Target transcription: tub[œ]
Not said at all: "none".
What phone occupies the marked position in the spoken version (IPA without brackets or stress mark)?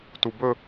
ɵ